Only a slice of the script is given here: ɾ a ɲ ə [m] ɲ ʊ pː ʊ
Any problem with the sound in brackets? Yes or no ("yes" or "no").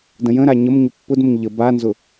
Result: no